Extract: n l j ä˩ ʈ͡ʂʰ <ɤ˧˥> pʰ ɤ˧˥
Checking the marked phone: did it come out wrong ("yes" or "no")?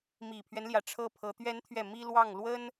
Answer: yes